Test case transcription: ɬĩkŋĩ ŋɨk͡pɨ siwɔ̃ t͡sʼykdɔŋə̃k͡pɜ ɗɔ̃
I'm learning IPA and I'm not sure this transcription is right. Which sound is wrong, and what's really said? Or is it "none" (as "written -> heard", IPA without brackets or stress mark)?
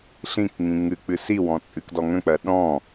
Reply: y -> ɨ